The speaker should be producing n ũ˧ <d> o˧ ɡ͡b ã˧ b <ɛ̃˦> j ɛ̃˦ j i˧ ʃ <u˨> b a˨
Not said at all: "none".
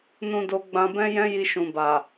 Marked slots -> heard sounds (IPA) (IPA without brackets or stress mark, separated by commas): d, ɛ̃˦, ũ˨